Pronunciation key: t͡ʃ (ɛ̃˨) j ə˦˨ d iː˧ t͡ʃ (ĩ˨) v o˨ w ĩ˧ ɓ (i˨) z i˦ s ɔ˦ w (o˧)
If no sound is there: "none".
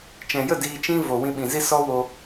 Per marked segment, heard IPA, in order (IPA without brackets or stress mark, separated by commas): ɛ̃˨, ĩ˦, ĩ˨, o˧